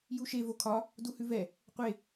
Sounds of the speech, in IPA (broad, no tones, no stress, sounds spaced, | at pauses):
j u ʃ e v o kʰ ɒ | d u h ʉ v ɛ | qʷ e